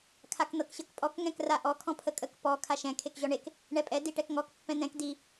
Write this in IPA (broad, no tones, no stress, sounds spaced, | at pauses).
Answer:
kʰ a k n̪ ɤ k ɕ ɤ k pʼ ɔ k ŋ ɛ̃ k r a ʔ ɔ kʰ ɔ̃ pʰ ə kʼ ə k p ɔ kʰ a ʃ ɛ̃ kʰ e k ʑ ɔ ɳ e k | ɳ ɛ pʼ ɛ d i ʈ ɛ k ŋ ɔ k pː ɛ̃ n̪ ɛ̃ k d i